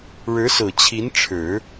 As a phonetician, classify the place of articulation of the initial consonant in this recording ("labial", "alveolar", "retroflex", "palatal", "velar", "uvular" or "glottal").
retroflex